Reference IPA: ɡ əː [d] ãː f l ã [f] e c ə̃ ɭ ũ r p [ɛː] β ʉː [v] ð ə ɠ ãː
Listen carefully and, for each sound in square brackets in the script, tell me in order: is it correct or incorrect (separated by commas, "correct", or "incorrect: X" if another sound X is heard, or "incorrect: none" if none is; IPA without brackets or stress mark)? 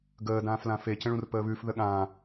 correct, correct, incorrect: əː, incorrect: f